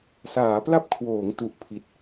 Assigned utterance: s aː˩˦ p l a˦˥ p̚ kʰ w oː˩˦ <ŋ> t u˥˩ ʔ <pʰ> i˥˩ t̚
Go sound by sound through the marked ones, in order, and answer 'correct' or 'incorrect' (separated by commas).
correct, correct